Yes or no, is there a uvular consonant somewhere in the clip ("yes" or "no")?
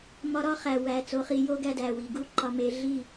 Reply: yes